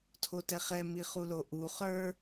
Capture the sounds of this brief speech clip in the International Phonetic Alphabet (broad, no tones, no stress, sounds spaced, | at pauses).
tʰ o t ɛ χ ɛ m i χ u l o ʔ u χ ə˞